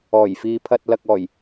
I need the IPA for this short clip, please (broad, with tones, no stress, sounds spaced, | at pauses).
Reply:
ɔː˨˩ j f iː˨ pʰ ɐ˨ t̚ l ɐ˨ k̚ ɔː˨˩ j